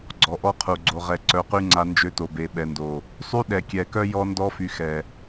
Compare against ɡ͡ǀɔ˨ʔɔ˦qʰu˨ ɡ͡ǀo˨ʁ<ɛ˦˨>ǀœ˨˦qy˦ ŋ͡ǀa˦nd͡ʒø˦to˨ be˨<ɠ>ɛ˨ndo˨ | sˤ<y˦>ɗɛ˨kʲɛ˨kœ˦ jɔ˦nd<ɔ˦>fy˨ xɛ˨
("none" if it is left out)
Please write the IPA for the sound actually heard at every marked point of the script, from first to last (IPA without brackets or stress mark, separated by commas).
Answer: ɛ˨, ɓ, y˦, ɔ˦